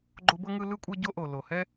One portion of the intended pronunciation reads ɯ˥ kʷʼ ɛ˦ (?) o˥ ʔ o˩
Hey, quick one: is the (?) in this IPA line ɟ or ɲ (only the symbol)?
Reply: ɟ